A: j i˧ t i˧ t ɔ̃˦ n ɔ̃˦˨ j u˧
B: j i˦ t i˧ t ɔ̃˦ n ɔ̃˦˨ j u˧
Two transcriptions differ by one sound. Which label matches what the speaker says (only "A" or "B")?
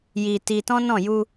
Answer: A